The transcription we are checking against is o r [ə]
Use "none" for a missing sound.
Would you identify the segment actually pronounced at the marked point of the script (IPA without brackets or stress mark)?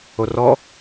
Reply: ɔ